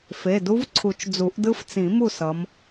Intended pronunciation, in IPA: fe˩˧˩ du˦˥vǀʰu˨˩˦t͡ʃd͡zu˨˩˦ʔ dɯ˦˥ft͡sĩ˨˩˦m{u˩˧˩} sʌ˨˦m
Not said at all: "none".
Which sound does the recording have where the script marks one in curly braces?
u˥˨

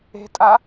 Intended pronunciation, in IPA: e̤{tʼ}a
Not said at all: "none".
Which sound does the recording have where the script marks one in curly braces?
tʼ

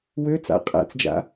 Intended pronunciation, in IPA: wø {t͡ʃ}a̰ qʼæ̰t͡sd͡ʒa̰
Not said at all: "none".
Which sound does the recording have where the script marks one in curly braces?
t͡s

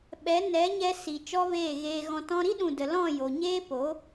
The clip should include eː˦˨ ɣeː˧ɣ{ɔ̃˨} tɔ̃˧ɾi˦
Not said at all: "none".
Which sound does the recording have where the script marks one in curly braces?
ɔ̃˧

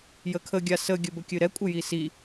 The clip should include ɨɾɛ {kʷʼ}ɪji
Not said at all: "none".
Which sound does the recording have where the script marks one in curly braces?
kʷʼ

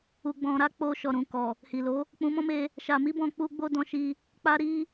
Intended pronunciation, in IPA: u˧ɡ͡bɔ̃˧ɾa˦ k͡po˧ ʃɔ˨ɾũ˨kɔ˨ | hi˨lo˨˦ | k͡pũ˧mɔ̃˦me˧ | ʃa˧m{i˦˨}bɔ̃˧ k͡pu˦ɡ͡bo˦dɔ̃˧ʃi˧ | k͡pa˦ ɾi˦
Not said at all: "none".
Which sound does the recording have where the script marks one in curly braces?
i˦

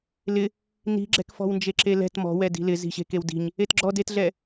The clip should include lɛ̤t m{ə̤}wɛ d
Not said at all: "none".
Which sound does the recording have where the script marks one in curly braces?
ɔ̤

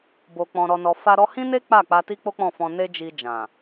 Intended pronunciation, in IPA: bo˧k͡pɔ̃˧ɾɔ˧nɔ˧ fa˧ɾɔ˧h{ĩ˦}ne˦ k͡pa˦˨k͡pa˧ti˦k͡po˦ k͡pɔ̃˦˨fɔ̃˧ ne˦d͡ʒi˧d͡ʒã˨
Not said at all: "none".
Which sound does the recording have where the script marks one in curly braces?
ĩ˦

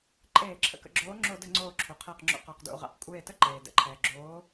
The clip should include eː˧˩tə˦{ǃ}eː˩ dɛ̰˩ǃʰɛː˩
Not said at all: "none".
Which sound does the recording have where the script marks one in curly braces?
ǃ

